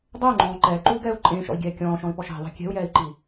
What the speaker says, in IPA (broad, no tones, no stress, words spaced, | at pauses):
dˤɛu̯ŋ͡ǃɔ̃ː ǃɛːǃuːɡɛːu̯ ǃʼẽːʃɔ̰i̯ɡʲɛː kʲɔ̃ːʃɔ̃i̯pɔʃ ɛ̤ðˤɛ̤ kʲɛ̤u̯jɛːi̯ǃi